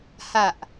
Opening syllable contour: low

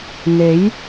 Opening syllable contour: rising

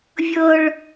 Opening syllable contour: high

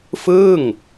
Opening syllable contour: falling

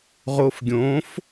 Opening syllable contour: low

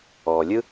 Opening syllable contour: low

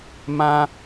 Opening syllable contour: high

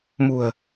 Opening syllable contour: low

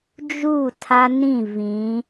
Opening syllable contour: falling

